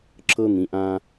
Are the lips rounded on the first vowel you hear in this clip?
no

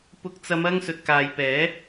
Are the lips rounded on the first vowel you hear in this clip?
yes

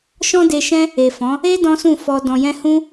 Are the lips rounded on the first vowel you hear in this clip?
yes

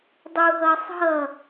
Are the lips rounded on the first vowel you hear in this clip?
yes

